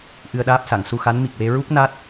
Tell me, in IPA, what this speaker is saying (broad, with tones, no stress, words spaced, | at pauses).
ʔɨ˧ə̯ɗaː˦˥p̚sa˨˩˨ŋ su˧xa˧˥n mi˨˩k̚we˧ɹu˦˥k̚ na˦˥t̚